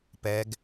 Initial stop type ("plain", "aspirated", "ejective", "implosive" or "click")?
plain